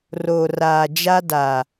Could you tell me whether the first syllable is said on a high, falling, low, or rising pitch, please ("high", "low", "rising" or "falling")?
low